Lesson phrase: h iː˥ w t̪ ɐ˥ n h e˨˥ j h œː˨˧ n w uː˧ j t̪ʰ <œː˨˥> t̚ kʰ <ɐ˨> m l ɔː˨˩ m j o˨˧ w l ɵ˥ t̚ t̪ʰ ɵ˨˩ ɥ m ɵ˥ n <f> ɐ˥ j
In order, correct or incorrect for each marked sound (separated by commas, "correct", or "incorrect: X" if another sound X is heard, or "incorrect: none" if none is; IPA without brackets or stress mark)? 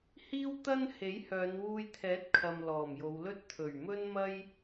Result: incorrect: ɛː˨˥, correct, incorrect: m